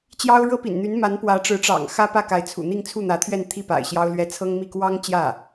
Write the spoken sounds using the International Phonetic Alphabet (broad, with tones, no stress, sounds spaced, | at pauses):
t͡ɕ j ɑ˥ ʊ̯ ɻ ɤ˥ p ḭ˨˩ n n̪ y˧˥ n m a˧˥ n p w ä˧˥ ʈ͡ʂ ɻ̩˧˥ ʈ͡ʂ ɑ̰˨˩ ŋ x ä˥ p ä˥˩ k a˧˥ ɪ̯ t͡sʰ ṵ˨˩ n̪ i˥˧ ŋ t͡sʰ u˥˩ n̪ ä˧˥ t̪ʰ ɥ ɛ˥˧ n t̪ʰ i˥˩ p a̰˨˩ ɪ̯ ɕ j ɑ˥ ʊ̯ l ɥ ɛ˥ t͡sʰ ɤ˥ ŋ m i˥˩ k w ɑ˥ ŋ t͡ɕ j ä˥˩